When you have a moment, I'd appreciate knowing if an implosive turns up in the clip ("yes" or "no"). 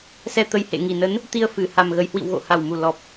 no